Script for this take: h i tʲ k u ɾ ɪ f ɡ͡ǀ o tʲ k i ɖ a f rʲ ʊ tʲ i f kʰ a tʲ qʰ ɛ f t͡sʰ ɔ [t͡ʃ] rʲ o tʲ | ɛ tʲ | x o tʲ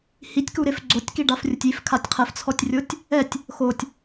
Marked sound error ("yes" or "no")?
yes